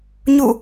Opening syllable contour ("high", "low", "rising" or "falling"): falling